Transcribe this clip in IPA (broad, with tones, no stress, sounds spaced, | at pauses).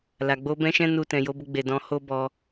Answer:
l a˨ ɡ͡b o˧ b ɛ̃˦ ʃ ɛ̃˦ n u˧ t ɛ̃˨ j o˨˦ b o˧ ɡ͡b e˨ d ɔ̃˨˦ h o˦ b ɔ˧